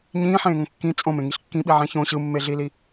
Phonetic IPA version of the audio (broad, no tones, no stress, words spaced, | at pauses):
ɲĩːħẽːŋõ kːĩ t͡sʼõmẽŋiɬ kːĩɓiʕɛ̃ çõ ɕɯmːeɮili